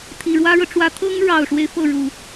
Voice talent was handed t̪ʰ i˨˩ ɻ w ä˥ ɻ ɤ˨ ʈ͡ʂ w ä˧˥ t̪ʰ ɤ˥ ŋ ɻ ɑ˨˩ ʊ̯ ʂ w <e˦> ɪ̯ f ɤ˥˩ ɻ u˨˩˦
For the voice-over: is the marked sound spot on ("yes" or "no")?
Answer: yes